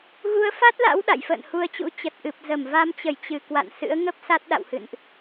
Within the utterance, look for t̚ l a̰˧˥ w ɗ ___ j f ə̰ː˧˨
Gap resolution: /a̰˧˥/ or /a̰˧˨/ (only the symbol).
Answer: a̰˧˨